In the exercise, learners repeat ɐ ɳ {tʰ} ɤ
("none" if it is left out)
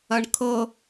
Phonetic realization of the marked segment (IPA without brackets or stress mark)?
kʰ